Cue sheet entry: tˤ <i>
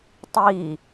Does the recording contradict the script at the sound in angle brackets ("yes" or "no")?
yes